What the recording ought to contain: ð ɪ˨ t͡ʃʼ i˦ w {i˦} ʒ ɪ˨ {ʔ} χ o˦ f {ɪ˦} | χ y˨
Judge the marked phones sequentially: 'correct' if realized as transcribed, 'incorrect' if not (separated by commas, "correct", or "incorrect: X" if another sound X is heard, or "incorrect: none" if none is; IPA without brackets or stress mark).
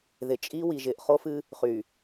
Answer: incorrect: i˨, correct, incorrect: ɨ˦